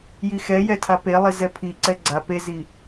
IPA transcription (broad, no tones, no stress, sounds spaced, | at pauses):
j i x ɛ j ɛ tʰ a p e lˠ i z ɛ pʰ i ǀ ɛ ɡ͡ǀ a p e z i